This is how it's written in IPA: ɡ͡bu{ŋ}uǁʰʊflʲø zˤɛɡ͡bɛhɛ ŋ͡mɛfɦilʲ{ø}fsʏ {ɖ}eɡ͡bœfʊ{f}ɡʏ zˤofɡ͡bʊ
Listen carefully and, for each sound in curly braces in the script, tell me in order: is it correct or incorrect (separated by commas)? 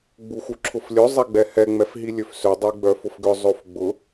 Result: incorrect, correct, incorrect, correct